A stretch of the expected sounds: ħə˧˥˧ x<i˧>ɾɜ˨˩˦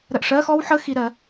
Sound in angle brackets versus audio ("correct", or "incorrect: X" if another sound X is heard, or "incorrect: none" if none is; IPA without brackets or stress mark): correct